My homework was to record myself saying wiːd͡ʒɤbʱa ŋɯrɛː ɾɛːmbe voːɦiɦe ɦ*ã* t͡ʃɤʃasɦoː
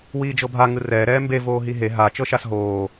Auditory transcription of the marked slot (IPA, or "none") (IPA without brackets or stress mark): a